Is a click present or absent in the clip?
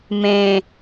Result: absent